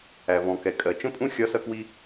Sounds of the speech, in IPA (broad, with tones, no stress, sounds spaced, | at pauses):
æ˩ v ɔ̃˩ k ɛ˩ kʼ ɜ˩ t͡ʃ ə̃˥ pʼ ũ˥ xʲ ɒ˥ s ʌ˥ k w i˥